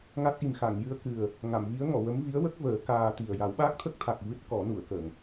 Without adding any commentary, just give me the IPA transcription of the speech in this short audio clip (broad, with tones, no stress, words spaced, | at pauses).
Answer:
ŋa˦˥t̚ʔi˨˩mxa˨˩˨ŋ jɨ˧ə̯kɨ˨˩ə̯ | ŋa˨˩˨mvi˧˥ə̯ŋɔ˨˩˨ wə˧˥m vi˧˥ə̯wə˦˥k̚vəː˨˩˦ kaː˧t̪i˨˩ə̯ ja˨˩˦wɓaː˦˥k̚t̪ʰə˦˥k̚t̪ʰa˨˩k̚ vɨ˦˥t̚ kɔ˨˩˦nu˨˩˨ə̯kə˨˩˨ŋ